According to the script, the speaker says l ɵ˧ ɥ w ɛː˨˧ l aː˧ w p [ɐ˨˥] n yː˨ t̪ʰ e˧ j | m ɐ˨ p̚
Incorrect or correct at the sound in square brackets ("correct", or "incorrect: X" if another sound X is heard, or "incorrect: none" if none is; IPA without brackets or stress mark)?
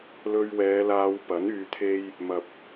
correct